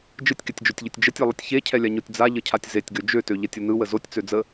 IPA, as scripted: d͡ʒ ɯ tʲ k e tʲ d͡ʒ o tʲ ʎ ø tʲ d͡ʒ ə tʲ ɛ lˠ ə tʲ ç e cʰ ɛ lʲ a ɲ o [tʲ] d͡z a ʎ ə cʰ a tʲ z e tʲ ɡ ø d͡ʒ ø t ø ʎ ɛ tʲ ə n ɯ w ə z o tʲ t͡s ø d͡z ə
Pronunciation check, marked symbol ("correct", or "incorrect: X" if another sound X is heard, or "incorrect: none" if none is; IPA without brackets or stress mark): correct